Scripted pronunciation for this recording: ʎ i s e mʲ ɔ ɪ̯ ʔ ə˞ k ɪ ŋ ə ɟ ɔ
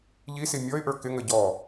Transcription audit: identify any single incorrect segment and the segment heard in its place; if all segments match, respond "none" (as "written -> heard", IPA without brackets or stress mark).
e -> i